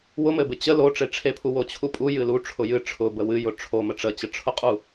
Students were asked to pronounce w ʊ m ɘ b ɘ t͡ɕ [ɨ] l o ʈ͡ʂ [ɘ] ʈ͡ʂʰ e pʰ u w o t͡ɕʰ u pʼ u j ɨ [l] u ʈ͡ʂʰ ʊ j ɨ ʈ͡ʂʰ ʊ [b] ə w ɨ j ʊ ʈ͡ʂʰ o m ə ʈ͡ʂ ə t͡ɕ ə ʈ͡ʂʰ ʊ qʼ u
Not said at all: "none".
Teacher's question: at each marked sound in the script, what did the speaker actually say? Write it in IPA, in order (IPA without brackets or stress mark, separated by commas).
ə, e, l, b